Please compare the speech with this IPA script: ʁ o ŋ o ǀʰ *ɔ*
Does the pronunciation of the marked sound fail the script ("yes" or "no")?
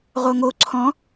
yes